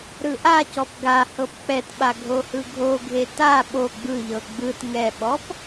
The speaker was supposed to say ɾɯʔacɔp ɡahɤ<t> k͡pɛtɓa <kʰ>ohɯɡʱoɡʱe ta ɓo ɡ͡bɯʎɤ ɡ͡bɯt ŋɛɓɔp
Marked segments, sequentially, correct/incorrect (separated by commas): incorrect, incorrect